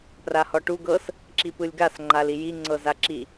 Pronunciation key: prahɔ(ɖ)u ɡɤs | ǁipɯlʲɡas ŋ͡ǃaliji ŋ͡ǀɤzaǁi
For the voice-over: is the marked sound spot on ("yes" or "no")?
no